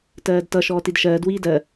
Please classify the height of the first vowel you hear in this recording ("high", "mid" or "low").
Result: mid